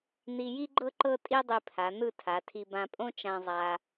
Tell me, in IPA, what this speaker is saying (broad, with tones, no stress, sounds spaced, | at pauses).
n̪ i˧ j i˥ ɡ͡ǃ ɤ˥ ǃ ɤ˥ tʼ i˥ dˤ i˧ pʰ a˩˧ n̪ ɯ˥˧ tʰ a˩˧ tʰ i˧ b ã˧ pʼ õ˥ t͡ʃ ã˧ zˤ a˧